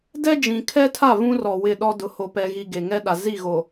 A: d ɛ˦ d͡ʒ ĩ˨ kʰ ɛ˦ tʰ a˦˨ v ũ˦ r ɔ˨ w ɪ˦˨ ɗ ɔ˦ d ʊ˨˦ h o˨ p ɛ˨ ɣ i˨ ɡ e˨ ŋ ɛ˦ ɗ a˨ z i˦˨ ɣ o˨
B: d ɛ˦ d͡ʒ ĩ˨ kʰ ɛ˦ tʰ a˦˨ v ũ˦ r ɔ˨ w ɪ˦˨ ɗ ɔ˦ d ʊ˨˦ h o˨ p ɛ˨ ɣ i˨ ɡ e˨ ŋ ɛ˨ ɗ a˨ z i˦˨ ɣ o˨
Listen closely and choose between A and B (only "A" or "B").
A